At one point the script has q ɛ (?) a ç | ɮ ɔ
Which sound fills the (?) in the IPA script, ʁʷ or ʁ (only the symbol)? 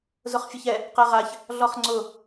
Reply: ʁ